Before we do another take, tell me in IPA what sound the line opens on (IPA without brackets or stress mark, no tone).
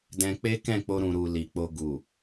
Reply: d